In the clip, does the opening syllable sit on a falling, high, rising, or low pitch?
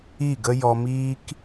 falling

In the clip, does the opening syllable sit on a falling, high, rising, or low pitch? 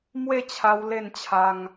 falling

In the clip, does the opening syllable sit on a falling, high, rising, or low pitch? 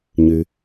low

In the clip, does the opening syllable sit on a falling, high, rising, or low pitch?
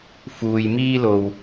low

